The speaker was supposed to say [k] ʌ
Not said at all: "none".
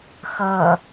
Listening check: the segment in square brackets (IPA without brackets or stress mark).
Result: x